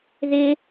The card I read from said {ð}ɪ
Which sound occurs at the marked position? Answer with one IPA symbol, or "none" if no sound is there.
ð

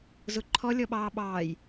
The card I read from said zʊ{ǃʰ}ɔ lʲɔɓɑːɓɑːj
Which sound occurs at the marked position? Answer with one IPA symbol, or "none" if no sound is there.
ǃʰ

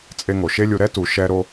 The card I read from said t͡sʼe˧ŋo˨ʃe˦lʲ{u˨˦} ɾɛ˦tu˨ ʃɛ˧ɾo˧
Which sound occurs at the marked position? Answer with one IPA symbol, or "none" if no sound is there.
u˧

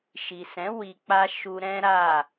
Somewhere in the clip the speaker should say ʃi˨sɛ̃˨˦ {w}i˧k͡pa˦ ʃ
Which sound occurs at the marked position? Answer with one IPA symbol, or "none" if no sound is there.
w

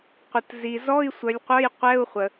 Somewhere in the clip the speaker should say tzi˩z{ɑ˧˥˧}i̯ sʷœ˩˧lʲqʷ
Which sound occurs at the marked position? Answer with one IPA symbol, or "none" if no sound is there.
ɔ˧˥˧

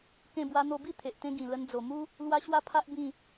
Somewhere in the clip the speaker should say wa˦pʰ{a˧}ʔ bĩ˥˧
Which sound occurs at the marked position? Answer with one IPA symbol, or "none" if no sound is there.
a˦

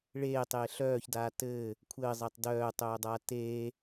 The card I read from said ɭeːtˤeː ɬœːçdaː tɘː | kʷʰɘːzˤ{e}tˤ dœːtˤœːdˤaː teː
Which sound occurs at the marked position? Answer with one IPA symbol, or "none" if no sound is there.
e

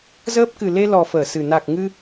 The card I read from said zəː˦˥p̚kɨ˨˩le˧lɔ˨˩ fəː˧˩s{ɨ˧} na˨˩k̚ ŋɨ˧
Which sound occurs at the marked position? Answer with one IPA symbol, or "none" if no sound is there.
ɨ˨˩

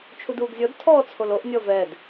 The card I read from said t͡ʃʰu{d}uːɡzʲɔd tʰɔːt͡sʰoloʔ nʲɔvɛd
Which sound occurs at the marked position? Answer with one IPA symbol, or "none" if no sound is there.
d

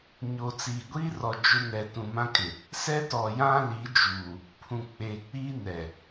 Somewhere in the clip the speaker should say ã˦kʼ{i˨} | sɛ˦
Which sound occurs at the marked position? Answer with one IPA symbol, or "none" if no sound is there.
ɪ˨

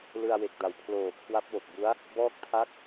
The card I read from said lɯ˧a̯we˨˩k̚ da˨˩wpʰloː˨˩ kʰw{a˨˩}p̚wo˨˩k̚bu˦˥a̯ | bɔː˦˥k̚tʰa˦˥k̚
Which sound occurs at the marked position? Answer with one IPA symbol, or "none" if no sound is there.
a˦˥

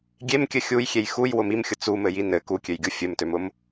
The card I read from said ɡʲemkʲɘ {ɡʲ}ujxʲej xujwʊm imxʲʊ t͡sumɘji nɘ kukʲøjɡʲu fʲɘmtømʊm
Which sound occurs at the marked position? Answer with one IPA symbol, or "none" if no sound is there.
xʲ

